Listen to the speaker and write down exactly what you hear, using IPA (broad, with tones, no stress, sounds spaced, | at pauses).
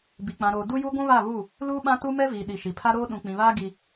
b i˨ k͡p ã˨ ɾ oː˨ d u˦ j u˦ ɡʷ ũ˦ β a˦˨ β u˦˨ | l uː˦ ɓ ã˦ t u˦ m ɛ˦ v iː˨ ɗ i˨ ʃ i˨ pʰ a˦ ɾ oː˦ ɗ ũ˨ k͡p ĩ˨ β aː˦ ɡ i˦